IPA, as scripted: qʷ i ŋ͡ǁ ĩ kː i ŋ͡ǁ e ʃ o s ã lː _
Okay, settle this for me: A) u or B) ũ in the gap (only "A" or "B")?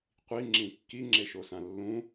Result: B